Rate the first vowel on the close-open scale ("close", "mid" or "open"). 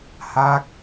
open